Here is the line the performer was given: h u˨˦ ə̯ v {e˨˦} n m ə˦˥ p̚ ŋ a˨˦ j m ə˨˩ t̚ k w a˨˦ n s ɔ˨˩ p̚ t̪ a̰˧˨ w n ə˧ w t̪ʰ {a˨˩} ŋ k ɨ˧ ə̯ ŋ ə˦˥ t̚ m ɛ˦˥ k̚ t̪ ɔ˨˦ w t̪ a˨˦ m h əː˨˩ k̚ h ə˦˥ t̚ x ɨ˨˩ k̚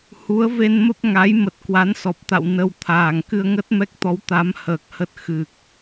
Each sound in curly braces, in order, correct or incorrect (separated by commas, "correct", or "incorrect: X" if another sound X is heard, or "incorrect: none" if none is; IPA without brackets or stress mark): incorrect: e˧, incorrect: aː˨˩